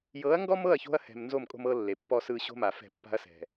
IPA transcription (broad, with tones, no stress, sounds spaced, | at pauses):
j ɤ˨˦ ɐ̯ ŋ ɡ ɔ˦ m ɤ˦˨ ɐ̯ ç o̤˦ ɐ̯ h ɛ̤˨ m n z o˦˨ m kʼ o̤˦ m ɤ˦ lː e˨ pː ɔ˦ s ɯ˦ ɕ o̤˦ m a˨ f ɛ̤˦˨ pː a̤˦ ɐ̯ s ɛ̤˨